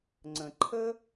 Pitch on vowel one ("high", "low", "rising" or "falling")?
low